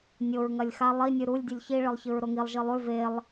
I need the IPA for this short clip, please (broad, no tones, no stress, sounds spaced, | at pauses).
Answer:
nʲ o ɹ ŋ ɐ lʲ x a lˠ i nʲ ɨ ɾ u lʲ dʲ ʉ lʲ ç i ɭ ɨ lˠ ç ɨ ɹ ɾ o ŋ i lˠ ʒ ɨ lˠ ʉ v e lˠ